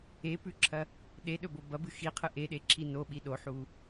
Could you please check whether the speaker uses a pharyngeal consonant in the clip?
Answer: yes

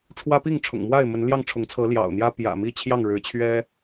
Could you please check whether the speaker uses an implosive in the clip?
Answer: no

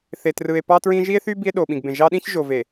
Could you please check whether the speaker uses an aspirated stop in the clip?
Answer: no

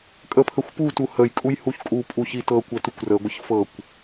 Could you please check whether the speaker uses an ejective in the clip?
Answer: yes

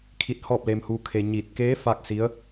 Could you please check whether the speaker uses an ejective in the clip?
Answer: no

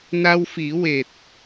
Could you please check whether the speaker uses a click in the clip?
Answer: no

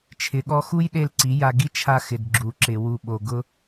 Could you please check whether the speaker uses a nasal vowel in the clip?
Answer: no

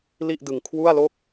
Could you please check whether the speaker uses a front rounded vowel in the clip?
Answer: no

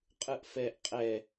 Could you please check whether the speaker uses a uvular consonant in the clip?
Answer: yes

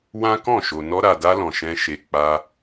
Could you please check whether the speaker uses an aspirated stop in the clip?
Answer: no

